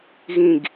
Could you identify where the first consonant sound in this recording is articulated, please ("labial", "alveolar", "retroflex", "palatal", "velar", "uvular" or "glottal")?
velar